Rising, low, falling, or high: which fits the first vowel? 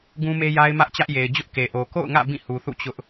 high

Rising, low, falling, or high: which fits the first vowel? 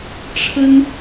high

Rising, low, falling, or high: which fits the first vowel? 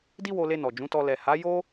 high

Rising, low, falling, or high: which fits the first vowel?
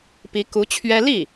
rising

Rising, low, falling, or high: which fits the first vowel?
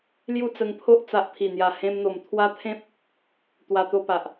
falling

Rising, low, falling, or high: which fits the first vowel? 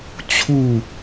falling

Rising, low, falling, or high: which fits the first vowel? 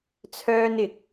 high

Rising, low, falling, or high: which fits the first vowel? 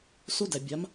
high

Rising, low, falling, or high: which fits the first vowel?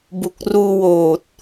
low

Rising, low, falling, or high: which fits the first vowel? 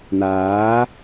rising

